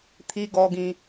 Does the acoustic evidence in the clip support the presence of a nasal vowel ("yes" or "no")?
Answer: yes